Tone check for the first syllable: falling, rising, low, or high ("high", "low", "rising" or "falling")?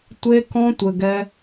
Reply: high